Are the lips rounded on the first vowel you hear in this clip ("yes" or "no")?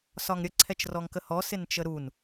yes